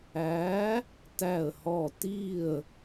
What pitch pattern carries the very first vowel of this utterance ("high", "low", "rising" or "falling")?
rising